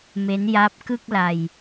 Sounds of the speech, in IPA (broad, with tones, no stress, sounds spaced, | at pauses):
m e˦˥ n j a˦˥ p̚ k ɯ˥˩ k̚ l a˧ j